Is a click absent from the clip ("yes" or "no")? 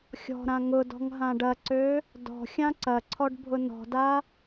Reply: no